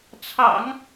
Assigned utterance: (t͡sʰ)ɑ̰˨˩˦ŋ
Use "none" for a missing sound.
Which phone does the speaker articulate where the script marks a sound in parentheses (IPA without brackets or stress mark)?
t͡sʰ